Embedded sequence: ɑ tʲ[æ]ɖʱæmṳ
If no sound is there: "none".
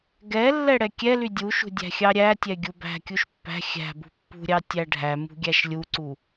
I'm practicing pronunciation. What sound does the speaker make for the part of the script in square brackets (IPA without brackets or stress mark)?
æ